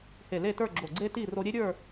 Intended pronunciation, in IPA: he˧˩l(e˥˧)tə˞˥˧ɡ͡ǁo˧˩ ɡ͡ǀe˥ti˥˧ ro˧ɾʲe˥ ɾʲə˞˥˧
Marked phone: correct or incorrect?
correct